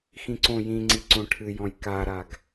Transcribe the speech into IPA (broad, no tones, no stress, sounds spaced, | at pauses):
x ĩ ǀ õ j ĩ ŋ͡ǀ i ǀ õ ʈʰ ɨ j ɔ̃ j k a ɾ a ɡ